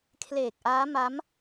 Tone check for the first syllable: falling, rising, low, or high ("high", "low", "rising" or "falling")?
low